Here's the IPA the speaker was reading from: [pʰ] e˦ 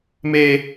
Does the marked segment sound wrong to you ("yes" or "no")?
yes